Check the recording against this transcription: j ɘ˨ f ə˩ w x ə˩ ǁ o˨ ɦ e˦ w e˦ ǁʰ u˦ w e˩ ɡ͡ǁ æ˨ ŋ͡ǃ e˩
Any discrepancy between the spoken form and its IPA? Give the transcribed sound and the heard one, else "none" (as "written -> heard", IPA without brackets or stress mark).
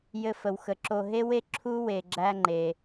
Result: none